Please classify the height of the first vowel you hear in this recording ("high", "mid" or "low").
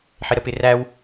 high